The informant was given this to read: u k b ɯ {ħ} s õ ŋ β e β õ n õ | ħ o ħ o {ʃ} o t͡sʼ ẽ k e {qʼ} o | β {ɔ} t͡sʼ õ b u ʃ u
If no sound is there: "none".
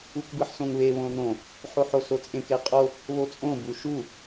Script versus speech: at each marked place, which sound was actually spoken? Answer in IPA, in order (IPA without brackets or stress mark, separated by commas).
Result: ħ, s, qʼ, o